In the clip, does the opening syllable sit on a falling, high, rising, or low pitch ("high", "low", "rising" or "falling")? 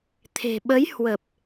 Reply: low